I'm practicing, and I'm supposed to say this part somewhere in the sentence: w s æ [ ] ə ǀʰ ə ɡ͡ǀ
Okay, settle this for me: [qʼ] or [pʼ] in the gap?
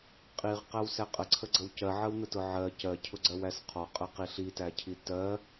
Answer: qʼ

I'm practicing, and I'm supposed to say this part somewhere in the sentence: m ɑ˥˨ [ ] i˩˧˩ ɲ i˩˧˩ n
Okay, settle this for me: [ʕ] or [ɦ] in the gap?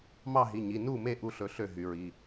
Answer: ɦ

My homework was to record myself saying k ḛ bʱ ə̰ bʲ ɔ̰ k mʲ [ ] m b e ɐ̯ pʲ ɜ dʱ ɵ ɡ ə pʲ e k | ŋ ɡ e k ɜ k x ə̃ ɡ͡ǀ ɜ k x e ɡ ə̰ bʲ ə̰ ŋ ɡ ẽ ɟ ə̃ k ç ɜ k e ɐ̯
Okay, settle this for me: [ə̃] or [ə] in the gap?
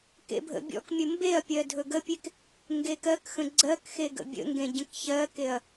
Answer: ə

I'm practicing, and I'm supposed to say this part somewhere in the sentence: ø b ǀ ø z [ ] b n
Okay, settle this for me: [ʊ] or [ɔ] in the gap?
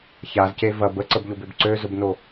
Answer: ʊ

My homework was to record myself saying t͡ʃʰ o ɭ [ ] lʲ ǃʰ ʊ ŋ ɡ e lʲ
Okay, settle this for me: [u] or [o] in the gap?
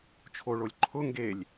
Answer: o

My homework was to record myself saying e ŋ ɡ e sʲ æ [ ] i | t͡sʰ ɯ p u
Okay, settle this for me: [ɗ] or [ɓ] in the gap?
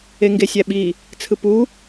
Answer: ɓ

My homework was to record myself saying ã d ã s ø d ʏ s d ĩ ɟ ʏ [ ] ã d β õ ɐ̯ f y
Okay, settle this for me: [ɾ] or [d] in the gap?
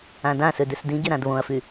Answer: ɾ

